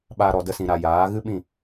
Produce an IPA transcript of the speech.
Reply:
ɓa˧ ɾɔ˨də˧sĩ˨ɾa˨ jaː˨˦ ɣɨ˦ɓĩ˦˨

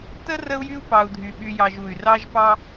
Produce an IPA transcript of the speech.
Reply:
tə˥rə˦u̯jy˦u̯ pɑ˨u̯dʱy˩ɓy˨jɑ˨ʒ u˩y̯rɑ˦ʒpɑ˦

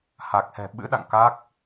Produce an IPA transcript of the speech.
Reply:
ha˨˩k̚hɛ̤˨˩ ɓɨ̰˧˥ɗa̰˧˨ŋ ka˦˥k̚

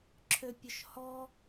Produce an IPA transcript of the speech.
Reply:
ǁʰøpʲʊʃhɔ

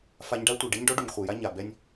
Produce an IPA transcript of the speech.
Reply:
fa˧ɲɖa˦tʷe˨ ɖe˦ɲɖɔ˦ ɖu˨ɲχʷɛ˨ja˦ ɲa˨ bɛ˧nʲ

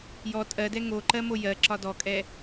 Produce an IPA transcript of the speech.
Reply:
jɔ tʼɜdɛ ŋoǃɜ mojɜǁɒ dɔkʼɛ

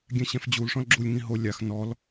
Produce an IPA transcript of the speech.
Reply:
ɡʲɛ̃ɕɛ̃fd͡ʑul ʂɔ̃lɡ͡ǁulʲŋĩ ɦo lʲax nɔl

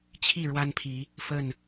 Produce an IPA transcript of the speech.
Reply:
t͡ɕʰi˥˨ ɻwa˦npʰi˨˦ | fə˥˨n

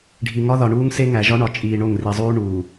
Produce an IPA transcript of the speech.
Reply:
ɖʱi˨ŋɒ˦ðɒ˨ɳuː˦ŋ se˦ŋæ˨ ʒɒ˦ɳɒ˨ t͡ʃʼiː˨ɳo˦˨ŋri˨zˤuː˦ ɳuː˨

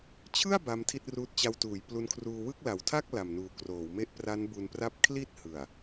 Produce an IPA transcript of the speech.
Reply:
t͡ɕʰɯ˥˩a̯ ba˦˥mtʰi˥˩t̚ruː˦˥t̚ t͡ɕa˧wtuː˩˦jplu˧nkʰruː˧ wɯ˥˩k̚ la˨˩wtʰa˥˩k̚ la˨˩mnuː˨˩ kroː˩˦wme˥˩ʔ pra˦˥n bu˧npra˥˩p̚ kʰli˥˩t̚hɯ˨˩a̯

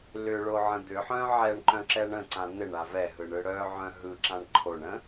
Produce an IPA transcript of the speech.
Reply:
lʏɭoʕə̃ d̪ʏħœ̃ ʕɛɳǃœ̃ǁɛɳ ə̃ǀã n̪ɪɳa vɛɦɯɳɯ ɽœʕœ̃ ɦɯǁãɳ ǃʰoɳə̃

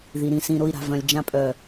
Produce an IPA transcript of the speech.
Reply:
ði˨ɾĩ˨sĩ˨ ɾo˨i̯ɾa̤˨ vœ̃˨lʲ d͡ʒã˨pʼœ˨

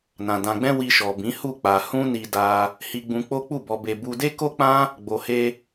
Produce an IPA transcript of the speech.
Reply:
nã˨ dã˧ɡ͡bɛ̃˦ wi˧ʃɔ˨bĩ˨˦ hu˦˨k͡pa˧ hũ˦ni˧da˧ | hi˧ɡ͡bũ˧ k͡po˦k͡pu˦˨bɔ˧ be˧ bu˧de˦ko˦k͡pã˦ | ɡ͡bo˨he˧

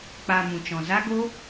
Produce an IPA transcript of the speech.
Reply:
k͡pa˧mũ˨ t͡ʃɔ̃˨za˦ɡo˦

